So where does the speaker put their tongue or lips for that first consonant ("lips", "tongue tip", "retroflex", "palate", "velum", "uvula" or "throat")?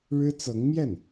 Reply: retroflex